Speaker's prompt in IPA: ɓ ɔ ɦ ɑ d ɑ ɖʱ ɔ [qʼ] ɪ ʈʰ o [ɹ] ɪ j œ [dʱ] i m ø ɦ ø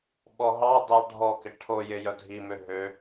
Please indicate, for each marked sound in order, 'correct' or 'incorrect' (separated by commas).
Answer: incorrect, incorrect, correct